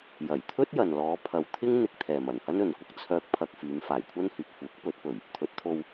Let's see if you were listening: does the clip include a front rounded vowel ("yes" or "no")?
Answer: yes